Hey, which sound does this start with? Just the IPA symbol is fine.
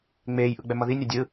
ŋ͡m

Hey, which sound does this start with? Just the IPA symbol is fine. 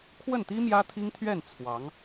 kʰ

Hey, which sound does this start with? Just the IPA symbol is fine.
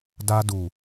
d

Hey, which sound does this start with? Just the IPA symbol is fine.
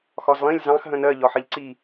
x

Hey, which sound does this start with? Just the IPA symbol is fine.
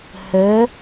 h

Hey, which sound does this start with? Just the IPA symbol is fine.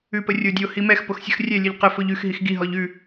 ʉ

